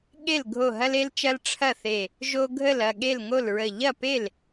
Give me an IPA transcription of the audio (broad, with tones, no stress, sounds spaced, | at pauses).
ɠ e˥˩ l ɡʱ o˧˩ ɦ ɐ˦ l e˦ l t͡ʃ ɐ˦ l ʈ͡ʂʰ ɐ˥˩ θ e˧˩ | ʒ o˦ ɡʱ ə˥˩ l ɐ˥˩ ɠ e˥˩ l ŋ o˥˩ l ɹ ə˧˩ ʎ ɐ˥˩ p e˥˩ l